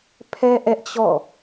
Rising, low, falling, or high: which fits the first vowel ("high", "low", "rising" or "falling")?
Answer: high